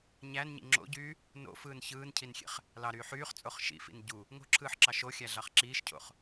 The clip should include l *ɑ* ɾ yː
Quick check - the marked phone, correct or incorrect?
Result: correct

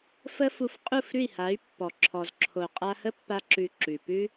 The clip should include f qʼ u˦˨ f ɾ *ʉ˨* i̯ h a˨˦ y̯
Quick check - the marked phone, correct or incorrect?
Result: incorrect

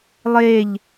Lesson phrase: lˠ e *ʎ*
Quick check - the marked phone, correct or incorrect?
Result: correct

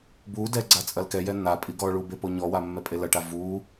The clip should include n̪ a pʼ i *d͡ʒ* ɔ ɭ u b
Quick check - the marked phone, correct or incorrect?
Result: incorrect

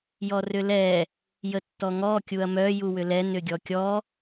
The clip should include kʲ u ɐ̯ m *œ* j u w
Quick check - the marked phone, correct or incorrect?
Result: correct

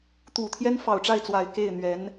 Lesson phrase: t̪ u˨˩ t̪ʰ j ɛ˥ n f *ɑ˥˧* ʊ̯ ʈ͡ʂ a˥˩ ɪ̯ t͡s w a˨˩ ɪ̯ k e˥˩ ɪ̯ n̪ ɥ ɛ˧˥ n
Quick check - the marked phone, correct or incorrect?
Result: incorrect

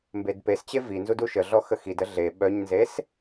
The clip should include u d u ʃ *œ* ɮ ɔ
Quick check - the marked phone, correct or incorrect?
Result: incorrect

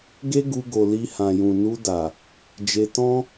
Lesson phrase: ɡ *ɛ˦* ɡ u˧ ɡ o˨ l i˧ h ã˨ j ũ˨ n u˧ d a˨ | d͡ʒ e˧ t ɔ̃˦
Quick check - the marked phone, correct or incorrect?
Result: incorrect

